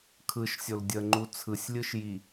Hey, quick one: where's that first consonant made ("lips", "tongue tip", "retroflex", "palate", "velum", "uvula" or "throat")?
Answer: velum